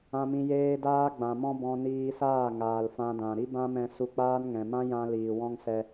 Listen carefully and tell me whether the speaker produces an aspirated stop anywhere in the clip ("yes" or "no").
no